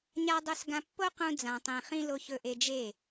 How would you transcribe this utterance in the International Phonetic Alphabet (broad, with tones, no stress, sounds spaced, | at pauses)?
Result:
ɲ a˧ dˤ ɵ˧ s ɡ ã˧ pː o˦ q ũ˧ d͡z ã˨ tˤ ẽ˨ χ ĩ˧ l o˧ ç ɵ˧ ʔ e˧ d͡ʒ e˦˨